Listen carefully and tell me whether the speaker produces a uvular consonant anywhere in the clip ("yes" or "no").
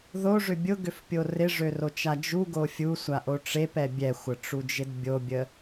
no